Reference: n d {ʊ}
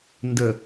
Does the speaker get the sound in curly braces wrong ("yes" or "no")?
yes